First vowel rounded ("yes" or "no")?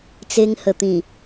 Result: no